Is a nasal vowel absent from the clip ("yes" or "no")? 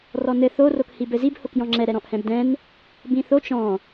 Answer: no